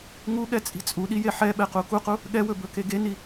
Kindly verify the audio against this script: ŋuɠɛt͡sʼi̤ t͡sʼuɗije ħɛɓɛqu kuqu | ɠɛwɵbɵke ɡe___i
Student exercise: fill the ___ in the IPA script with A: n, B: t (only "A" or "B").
A